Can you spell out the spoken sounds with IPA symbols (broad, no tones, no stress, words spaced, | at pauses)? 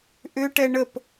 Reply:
ʔʏʈɛ ɳəp